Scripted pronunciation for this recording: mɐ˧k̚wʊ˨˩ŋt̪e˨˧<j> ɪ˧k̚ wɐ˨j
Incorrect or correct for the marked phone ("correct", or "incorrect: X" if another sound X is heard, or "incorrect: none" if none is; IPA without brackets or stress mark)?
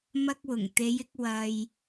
correct